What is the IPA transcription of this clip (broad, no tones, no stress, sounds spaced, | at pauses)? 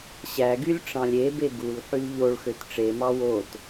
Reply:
ɕ æ ɡ y lʲ ʈ͡ʂ ɑ̃ lʲ e b e ɡ u l ħ y l ʎ o ɭ x ø t ʈ͡ʂ e m ɑ w o t